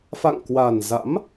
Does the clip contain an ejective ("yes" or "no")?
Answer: no